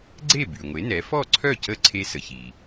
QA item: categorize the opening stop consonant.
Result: click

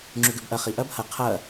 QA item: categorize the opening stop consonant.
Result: click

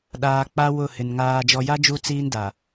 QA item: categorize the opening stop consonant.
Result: implosive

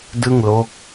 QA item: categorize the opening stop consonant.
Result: plain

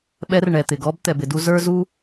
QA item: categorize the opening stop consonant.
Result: implosive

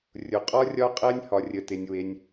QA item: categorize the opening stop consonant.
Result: ejective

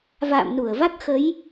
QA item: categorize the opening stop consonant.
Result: plain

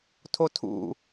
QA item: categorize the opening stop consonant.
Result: aspirated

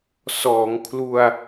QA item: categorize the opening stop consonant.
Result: aspirated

